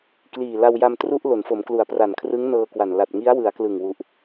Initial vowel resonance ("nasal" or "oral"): oral